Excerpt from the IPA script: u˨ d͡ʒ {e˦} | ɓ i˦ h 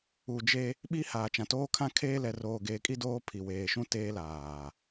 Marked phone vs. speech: correct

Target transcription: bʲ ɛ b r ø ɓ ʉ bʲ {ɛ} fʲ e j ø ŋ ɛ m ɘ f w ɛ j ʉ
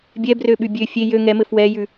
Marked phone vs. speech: incorrect: ø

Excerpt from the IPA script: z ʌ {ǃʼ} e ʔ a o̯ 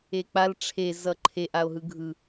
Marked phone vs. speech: incorrect: ǃʰ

